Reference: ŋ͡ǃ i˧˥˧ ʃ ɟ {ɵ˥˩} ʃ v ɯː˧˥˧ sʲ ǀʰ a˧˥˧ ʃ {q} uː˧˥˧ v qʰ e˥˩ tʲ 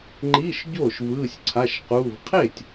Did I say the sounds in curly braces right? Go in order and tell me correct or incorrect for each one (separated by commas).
incorrect, correct